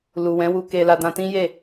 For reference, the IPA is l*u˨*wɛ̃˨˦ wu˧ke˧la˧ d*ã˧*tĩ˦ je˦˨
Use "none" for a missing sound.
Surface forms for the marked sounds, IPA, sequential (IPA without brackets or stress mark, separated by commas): u˨, ã˧